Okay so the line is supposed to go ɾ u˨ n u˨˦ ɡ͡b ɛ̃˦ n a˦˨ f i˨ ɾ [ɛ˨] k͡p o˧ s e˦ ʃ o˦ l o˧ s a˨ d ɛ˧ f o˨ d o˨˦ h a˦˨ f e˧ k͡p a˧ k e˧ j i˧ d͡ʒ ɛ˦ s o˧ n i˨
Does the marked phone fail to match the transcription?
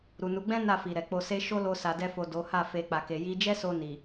no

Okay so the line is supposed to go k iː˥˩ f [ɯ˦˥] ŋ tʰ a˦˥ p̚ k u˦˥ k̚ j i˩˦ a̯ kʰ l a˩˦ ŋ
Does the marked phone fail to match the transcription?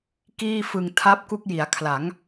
yes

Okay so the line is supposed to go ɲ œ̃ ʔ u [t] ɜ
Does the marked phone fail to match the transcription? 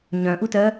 no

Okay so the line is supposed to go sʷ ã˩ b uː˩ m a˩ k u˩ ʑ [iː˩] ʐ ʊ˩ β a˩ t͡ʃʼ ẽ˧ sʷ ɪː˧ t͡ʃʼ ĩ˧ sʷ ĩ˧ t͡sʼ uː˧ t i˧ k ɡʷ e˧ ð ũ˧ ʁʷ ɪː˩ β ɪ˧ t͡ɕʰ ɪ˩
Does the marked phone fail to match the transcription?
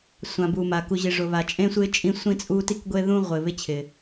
yes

